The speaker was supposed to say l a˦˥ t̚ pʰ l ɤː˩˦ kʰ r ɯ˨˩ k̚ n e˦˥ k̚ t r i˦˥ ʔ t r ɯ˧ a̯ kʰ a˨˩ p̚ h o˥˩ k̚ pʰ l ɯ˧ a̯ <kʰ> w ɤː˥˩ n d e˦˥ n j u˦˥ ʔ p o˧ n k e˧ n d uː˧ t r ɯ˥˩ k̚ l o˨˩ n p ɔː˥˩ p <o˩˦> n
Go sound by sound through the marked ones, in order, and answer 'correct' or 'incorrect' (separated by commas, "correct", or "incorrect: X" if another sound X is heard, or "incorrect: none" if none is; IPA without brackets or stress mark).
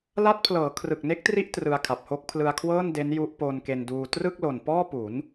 correct, incorrect: u˩˦